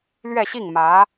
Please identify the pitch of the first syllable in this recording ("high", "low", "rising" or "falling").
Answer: falling